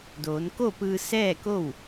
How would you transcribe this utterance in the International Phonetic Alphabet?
doː˩˧nko˥˨pɯː˧ sɛː˥˨ko˥˨w

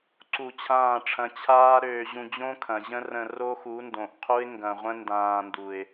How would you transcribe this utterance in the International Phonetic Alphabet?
ǀu˧t͡ɕʰãː˦˨ʈ͡ʂʰɐ̃˧ t͡ɕʰaː˦ ɾøː˧ ʑũ˧d͡ʑõ˦ kʰɐ̃˨ʑə̃˦rə̃˧ ro˦xu˨˦ndõ˨ʔqʰu˦ɪ̯ ŋɡɐ̃˧ʁʷə̃˦ ndãː˧ndu˨ɪ̯

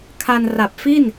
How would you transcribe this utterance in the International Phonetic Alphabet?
kʰa˧nra˨˩p̚fi˥˩n

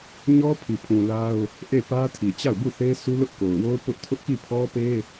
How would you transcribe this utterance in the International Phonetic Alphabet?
ɲɔ˦pʰi˨pʰũ˨ la˦ʊ̯ | ʔe˦˨pä˦tʰi˨ t͡ɕa˦˨ʊ̯bu˦˨θe˦su˦ lʊ˦ʔko˨ʊ̯wo˦ʊ̯ pʊ˦ʔ tʰʊ˦ʔki˦˨pʰɔ˦pe˦

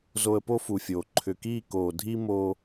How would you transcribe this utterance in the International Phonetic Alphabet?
zo˧ə̯po˦fu˨fʲoː˨ ǃʰʏ˨kiː˦˨ koː˨dʱi˦ mo˧

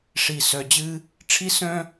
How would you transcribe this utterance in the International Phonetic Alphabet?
ʂi˨sœ˨d͡ʑɨ˦ | ʈ͡ʂʰi˥sœ̃˥

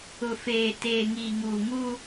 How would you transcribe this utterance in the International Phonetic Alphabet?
ʊ˨feː˨ teː˨ŋiː˨ŋuː˨ŋu˦

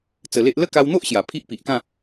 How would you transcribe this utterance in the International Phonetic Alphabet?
t͡sə˧le˦ʔ lə˦ka˧wn̪o˦ʔ ɕja˨˩pʰi˦ʔpi˨ʔkã˥˧

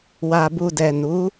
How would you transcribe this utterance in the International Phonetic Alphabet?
wa˨bu˨dɛ˨ nu˨˦

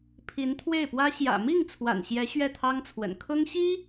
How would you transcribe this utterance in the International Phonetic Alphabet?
pʰi˧˥nt̪ʰwe˥˩ɪ̯pwä˥ ɕjä̰˨˩ mi˥˩ŋ t͡sʰwa̰˨˩nɕjɛ˧˥ ɕɥɛ˥˩t̪ʰɑ˥ŋt͡sʰwə̰˨˩n kʰʊ˥ŋɕi˥

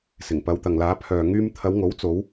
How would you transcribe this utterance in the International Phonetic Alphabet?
sɪ˨˩ŋpɐ˨˧wt̪ɐ˨ŋlaː˨˧ pʰœː˨ŋyː˧m t̪ʰɐ˨˧wŋo˨˥w t͡so˨˧w

